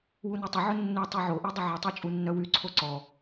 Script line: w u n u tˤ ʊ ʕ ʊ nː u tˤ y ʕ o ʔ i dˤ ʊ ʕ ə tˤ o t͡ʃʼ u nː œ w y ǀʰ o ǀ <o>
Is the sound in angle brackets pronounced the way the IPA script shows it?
no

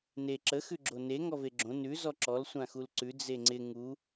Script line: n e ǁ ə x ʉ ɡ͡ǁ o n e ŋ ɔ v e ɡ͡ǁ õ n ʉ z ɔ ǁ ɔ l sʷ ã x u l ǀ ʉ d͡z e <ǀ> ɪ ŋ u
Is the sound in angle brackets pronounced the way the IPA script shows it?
no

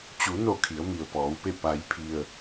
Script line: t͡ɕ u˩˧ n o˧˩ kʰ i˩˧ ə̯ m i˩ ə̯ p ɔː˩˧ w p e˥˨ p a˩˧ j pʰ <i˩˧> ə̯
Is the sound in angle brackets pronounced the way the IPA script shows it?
no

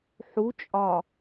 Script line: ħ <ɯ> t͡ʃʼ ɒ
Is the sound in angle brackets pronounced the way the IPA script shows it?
no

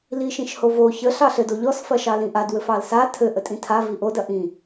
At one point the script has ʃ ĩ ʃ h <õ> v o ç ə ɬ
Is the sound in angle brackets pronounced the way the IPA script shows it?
no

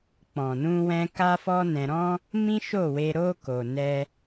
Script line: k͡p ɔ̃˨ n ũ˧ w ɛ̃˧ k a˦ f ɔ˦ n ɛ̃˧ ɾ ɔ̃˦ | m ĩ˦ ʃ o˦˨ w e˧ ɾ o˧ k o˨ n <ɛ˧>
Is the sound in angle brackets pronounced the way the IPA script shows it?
yes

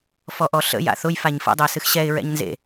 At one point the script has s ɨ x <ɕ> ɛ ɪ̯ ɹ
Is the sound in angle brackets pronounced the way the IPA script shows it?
yes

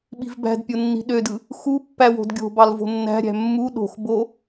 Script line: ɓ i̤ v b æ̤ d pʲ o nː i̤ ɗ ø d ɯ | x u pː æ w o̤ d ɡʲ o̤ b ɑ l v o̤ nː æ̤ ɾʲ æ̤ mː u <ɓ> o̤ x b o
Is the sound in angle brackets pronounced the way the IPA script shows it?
no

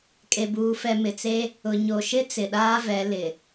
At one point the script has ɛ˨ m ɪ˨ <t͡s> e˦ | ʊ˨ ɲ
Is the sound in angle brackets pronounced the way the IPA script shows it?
yes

